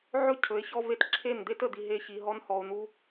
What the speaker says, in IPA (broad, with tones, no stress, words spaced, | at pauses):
ʕɵ˦˨cʰɵ˨˦e̯ çɔ˦ve˦t ǁʰe˦˨nd̪e˦t ə˨d̪i˨ ɦe˦˨çi˨ɦɔ˦n hɔ˨o̯n̪u˦